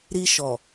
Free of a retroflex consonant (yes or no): yes